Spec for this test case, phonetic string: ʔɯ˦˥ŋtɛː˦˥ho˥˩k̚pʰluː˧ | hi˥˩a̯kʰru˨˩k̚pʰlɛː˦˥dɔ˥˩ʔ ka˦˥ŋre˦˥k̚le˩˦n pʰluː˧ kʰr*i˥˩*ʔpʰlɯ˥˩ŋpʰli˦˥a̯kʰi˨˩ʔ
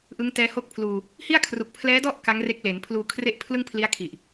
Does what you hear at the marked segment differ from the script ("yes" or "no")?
yes